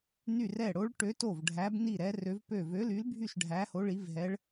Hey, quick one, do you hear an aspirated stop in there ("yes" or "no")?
no